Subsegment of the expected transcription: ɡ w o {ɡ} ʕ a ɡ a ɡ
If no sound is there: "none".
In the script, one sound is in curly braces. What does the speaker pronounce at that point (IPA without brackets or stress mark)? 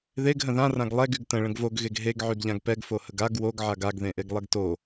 ɡ